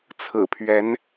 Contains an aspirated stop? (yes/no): yes